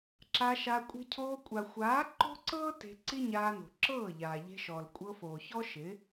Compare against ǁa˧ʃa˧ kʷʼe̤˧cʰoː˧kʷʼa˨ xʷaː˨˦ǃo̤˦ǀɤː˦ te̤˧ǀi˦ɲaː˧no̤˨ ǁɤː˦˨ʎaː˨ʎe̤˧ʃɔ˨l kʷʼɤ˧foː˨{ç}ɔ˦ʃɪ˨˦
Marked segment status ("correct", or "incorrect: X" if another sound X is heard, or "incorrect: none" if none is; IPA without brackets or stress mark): correct